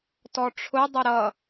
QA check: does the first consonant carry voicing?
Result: no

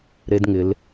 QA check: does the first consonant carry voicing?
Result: yes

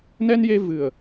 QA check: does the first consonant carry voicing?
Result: yes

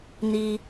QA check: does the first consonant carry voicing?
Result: yes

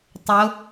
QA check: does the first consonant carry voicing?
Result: no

